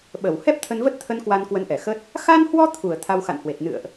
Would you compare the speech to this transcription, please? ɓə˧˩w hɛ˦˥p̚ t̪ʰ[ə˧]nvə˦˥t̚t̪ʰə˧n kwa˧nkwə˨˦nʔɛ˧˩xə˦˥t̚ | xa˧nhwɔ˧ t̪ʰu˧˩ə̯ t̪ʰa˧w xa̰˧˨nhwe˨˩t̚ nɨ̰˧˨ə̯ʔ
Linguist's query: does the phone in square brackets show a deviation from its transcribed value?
no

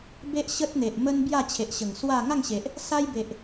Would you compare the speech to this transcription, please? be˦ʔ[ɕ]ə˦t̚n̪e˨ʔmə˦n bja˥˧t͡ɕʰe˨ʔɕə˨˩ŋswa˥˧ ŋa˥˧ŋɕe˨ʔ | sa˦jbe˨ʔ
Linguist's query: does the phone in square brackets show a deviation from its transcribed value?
no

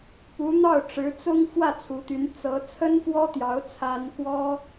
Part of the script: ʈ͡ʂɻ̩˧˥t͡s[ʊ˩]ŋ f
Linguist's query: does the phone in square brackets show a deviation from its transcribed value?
yes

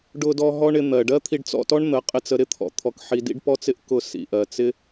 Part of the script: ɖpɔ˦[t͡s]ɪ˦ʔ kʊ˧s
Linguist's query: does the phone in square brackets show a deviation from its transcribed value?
no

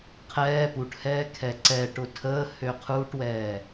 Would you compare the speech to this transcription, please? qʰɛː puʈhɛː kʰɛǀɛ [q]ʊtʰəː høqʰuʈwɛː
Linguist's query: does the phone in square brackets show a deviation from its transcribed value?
yes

